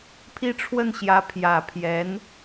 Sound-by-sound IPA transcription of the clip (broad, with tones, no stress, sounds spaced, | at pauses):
pʰ i˥˧ ʈ͡ʂʰ w ə˥˩ n ɕ j ä˧˥ pʰ j ä˨˩ pʰ j ɛ˧˥ n